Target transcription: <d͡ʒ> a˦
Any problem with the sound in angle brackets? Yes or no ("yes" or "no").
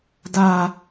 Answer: yes